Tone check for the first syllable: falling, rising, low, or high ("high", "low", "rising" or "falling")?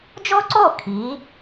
high